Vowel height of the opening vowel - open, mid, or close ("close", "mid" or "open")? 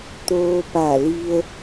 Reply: mid